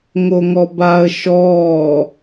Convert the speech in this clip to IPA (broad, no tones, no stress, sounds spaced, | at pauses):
ŋ o ŋ ɔ b a ə̯ ʃ ɔː